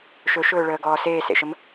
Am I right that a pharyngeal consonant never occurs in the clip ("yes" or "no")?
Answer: yes